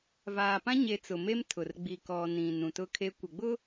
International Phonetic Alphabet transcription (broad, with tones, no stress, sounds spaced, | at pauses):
v aː˨ p ã˦ ɲ e˨ t͡s ʊ˨ m e˦ m tʰ ʊ˨ r ɡ͡b i˨ k ɔ˨ n ĩ˨ n ũ˨ t ʊ˦ kʰ e˦ kʷ ɪ˨ ɡ͡b ʊ˦